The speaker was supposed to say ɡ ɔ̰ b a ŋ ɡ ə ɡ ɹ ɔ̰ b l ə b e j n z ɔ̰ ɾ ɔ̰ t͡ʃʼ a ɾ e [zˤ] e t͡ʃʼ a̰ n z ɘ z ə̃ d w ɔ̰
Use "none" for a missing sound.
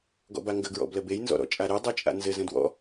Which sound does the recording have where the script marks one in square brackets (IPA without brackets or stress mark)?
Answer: dˤ